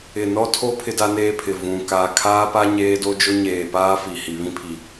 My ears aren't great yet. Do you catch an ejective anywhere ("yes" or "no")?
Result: no